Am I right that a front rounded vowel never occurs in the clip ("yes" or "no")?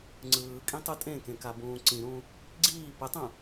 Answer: yes